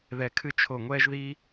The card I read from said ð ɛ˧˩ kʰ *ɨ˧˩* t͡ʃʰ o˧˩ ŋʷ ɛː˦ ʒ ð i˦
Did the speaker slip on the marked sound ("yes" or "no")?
yes